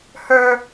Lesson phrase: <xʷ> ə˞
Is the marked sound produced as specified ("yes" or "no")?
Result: no